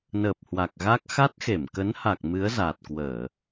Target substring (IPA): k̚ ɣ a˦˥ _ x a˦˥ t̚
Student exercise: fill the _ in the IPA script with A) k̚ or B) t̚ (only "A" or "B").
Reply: A